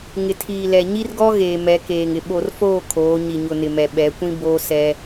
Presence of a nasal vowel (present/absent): present